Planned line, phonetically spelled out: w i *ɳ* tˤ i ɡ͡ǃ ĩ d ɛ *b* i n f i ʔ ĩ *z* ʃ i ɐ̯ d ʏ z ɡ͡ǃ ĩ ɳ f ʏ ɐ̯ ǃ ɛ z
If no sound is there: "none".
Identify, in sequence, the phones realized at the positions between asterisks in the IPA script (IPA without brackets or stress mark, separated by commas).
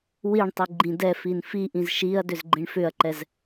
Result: ɳ, f, z